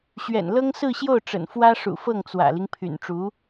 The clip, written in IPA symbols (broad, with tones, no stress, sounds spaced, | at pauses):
ɕ ɥ ɛ̰˨˩ n l ɤ˥ ŋ s ɹ̩˥˧ ɕ j o˥˩ ʊ̯ ʈ͡ʂ ə̰˨˩ n f w ä˥ ʂ ṵ˨˩ f ɤ˥˩ ŋ t͡s w ä̰˨˩ l i˦ ŋ pʰ y̰˨˩ n ʈ͡ʂ u˧˥